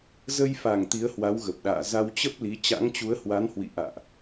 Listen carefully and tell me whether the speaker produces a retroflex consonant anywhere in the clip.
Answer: no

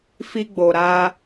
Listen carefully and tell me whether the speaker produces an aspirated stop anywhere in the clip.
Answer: no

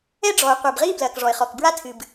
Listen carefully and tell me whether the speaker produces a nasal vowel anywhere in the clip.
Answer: no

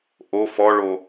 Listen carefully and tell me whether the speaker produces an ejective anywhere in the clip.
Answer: no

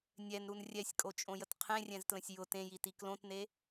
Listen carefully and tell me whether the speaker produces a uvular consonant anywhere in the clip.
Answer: yes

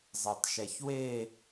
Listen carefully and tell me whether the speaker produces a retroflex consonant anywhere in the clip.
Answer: no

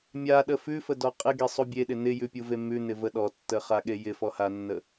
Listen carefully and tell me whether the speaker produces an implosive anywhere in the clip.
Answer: yes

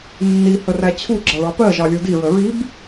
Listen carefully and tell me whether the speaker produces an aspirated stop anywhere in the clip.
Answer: yes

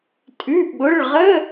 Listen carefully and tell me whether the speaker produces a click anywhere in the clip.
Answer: no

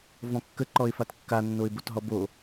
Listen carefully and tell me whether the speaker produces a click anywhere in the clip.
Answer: yes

